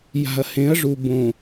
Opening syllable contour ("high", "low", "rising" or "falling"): low